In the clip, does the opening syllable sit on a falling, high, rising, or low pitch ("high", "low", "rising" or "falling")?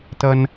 high